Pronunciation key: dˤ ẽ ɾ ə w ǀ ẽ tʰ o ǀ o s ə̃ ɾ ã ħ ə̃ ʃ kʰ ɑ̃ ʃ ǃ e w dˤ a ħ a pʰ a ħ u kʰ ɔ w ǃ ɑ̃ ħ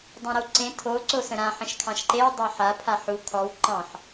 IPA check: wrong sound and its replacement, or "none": none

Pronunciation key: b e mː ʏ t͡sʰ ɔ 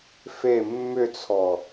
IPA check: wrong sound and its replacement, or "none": b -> f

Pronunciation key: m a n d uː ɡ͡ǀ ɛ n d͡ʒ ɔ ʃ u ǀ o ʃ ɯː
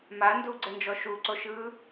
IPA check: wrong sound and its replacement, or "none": none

